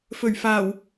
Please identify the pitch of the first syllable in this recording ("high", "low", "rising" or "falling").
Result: low